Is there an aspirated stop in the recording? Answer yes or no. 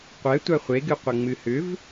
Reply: no